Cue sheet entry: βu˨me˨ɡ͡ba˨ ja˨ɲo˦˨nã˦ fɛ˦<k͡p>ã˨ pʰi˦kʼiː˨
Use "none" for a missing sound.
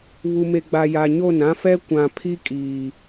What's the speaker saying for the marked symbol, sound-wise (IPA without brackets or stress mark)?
kʷ